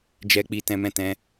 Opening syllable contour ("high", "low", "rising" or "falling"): high